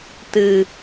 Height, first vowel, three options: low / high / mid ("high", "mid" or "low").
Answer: high